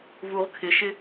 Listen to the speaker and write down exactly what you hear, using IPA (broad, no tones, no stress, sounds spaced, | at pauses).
v u ʁ kʰ ɪ ʃ ɪ